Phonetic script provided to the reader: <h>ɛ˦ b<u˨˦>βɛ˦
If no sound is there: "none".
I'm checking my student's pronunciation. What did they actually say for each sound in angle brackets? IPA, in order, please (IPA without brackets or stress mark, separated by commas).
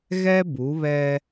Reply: ɣ, u˨˦